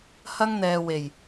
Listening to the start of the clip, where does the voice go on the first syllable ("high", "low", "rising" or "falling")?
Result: high